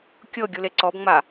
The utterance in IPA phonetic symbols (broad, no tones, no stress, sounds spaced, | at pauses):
kʲ ɤ ɡʲ u l e ǀ ɔ b ŋ͡m a